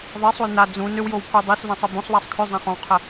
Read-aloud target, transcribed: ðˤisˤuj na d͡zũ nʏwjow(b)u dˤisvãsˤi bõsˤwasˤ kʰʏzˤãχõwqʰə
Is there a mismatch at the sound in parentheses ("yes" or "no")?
yes